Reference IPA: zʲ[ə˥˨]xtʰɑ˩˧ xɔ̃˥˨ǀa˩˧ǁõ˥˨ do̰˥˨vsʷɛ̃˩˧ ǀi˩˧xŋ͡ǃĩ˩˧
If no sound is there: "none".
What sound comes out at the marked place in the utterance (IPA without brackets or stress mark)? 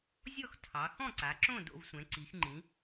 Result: ɔ˥˨